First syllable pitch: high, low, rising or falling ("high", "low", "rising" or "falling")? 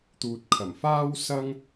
low